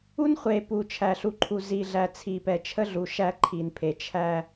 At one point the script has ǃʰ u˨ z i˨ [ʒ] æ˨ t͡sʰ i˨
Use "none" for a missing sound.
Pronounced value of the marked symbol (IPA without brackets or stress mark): ɮ